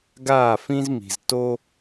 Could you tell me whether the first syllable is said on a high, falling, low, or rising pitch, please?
falling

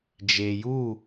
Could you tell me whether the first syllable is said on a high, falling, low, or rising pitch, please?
low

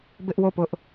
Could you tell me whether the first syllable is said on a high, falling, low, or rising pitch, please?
high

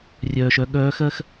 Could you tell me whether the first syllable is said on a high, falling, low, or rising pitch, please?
low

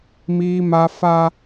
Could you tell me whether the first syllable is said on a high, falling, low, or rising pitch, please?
high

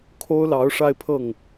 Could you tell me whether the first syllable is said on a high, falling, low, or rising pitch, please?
high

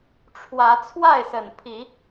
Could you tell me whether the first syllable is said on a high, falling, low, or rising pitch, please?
rising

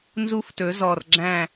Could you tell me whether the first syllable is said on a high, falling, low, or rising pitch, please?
high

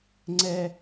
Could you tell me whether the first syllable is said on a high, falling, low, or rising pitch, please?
high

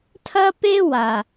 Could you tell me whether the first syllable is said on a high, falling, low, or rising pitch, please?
high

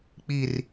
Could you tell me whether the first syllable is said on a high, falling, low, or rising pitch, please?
low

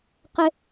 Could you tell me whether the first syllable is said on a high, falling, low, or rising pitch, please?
high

